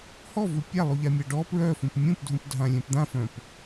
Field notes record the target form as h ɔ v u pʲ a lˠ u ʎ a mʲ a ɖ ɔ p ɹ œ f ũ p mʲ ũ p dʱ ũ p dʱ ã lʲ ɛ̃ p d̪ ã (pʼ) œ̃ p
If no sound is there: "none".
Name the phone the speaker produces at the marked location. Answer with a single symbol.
f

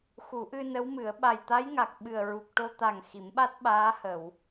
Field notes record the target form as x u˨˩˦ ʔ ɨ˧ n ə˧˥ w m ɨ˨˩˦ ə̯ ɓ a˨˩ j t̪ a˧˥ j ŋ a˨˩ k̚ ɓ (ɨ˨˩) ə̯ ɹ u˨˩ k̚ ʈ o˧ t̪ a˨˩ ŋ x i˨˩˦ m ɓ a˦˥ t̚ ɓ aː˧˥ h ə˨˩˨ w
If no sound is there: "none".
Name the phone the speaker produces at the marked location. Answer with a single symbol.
ɨ˨˩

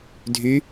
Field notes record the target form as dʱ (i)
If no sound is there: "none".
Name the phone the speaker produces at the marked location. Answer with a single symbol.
y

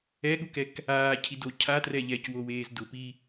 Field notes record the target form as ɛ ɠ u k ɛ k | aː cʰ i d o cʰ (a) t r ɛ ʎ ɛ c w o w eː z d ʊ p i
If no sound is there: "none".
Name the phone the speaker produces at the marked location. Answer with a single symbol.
a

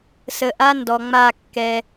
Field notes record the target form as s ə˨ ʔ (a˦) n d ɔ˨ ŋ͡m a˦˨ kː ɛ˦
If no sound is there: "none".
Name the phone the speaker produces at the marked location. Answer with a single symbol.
a˦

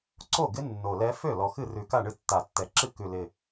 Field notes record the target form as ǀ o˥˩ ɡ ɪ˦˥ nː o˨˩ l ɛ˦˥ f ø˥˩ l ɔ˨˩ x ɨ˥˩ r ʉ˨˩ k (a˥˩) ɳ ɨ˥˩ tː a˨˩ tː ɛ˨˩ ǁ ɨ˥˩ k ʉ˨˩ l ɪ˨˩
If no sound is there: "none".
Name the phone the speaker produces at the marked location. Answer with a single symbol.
a˥˩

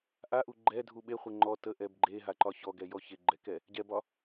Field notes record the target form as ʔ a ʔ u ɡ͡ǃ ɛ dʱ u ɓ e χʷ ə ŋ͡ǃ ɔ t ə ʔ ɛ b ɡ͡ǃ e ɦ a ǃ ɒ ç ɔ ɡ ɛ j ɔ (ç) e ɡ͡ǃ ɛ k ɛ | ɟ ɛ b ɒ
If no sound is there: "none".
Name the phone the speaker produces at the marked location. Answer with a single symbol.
ç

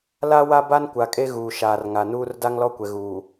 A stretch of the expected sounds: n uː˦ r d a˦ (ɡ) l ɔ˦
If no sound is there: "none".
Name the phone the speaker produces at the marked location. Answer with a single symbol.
ŋ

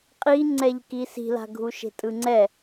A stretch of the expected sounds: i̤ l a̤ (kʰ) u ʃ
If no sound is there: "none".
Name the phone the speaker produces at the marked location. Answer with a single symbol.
ɡʱ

